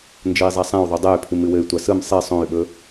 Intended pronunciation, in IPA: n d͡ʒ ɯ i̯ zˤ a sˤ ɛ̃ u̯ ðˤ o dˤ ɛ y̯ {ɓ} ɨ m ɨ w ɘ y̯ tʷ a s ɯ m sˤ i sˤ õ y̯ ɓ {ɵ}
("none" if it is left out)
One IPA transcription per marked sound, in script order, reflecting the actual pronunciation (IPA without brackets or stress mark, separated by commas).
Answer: pʰ, ɵ